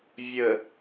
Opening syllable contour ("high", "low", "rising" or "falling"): low